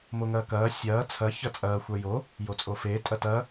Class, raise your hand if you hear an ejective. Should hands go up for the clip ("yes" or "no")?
yes